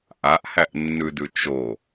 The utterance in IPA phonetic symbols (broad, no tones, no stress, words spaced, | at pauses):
ʔaʔhæʔnːʉdʉ t͡ʃo